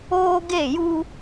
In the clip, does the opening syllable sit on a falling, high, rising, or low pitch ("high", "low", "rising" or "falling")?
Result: high